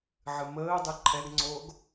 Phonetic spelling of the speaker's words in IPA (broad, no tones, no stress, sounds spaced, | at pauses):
ʕ ɨ m əː dˤ ɨ ǃʰ ɛ ɡ ŋ͡ǀ oː ɡ